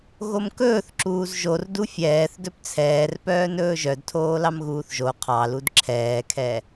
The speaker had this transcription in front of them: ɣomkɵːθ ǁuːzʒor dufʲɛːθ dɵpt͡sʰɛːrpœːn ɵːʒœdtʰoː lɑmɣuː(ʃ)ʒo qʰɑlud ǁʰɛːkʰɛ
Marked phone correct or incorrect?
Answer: incorrect: θ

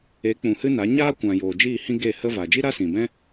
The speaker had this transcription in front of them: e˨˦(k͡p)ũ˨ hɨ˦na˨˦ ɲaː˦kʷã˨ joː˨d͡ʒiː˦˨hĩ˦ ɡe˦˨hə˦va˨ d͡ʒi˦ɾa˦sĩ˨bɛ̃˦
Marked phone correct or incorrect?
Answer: correct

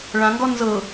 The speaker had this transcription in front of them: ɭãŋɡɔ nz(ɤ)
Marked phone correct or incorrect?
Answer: correct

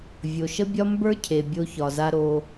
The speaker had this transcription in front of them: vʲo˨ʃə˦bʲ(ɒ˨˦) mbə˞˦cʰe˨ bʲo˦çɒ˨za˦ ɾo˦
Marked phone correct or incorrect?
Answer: incorrect: ɒ˦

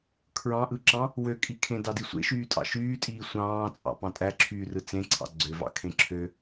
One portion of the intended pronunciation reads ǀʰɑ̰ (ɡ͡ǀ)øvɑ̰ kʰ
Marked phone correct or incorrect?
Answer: correct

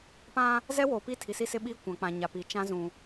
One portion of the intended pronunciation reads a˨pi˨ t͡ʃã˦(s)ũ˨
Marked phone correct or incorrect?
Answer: incorrect: z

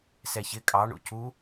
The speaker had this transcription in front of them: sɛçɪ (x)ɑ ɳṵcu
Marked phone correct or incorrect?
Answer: incorrect: kʼ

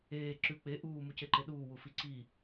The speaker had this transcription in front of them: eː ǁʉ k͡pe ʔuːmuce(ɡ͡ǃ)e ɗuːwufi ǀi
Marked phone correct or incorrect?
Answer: incorrect: ǃ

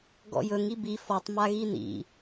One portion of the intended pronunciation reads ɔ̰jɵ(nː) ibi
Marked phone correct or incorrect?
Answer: incorrect: ŋ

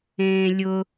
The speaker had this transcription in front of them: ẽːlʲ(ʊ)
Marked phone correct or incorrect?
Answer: correct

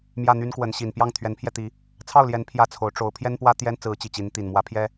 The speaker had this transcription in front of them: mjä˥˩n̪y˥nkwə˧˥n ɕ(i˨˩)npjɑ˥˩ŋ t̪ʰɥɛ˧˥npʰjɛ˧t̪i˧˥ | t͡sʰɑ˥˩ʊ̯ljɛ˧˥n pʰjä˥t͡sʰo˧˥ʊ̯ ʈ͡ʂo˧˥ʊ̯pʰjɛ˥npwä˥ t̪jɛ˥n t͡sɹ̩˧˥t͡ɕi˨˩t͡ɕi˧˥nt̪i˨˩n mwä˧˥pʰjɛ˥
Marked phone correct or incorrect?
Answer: correct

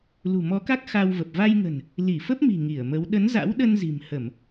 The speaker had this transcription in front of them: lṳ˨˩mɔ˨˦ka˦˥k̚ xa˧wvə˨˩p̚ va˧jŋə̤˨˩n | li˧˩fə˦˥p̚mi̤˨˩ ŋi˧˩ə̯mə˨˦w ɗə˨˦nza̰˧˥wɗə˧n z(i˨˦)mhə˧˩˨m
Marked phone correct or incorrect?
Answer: incorrect: i̤˨˩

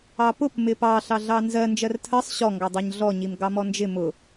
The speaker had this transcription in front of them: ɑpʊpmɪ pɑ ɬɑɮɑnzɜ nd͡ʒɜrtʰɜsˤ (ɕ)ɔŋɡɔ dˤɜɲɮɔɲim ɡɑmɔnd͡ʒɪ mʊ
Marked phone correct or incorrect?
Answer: correct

